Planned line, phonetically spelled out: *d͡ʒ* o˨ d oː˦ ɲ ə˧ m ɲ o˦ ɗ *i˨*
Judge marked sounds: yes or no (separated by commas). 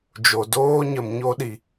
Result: yes, no